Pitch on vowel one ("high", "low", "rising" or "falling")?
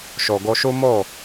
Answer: low